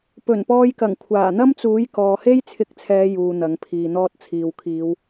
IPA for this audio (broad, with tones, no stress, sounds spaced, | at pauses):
p ɵ˨˩ n p ɔː˧ j k ɐ˨˩ ŋ kʷʰ aː˨˩ n̪ ɐ˥ m t͡s uː˨˥ j k ɔː˨ h e˥ j t͡sʰ ɪ˧ k̚ t͡sʰ ɛː˨˧ j uː˧ n̪ ɐ˨˥ ŋ pʰ iː˨ n̪ ɔː˥ t̚ t͡sʰ iː˨ w kʰ iː˨˧ w